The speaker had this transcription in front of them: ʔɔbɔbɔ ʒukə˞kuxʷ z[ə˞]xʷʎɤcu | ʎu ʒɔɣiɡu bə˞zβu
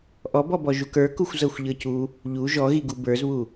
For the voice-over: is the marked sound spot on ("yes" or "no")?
no